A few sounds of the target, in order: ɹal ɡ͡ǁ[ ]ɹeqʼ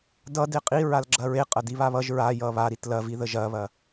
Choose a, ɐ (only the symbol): ɐ